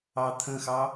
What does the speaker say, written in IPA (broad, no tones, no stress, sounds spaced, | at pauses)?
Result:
ɑ t̪ʰ ə̃ x ɑ